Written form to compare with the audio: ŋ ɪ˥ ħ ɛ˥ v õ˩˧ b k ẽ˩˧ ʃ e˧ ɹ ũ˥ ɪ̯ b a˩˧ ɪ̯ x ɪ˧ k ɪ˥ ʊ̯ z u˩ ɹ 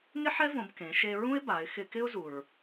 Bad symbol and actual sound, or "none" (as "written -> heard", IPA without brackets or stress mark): none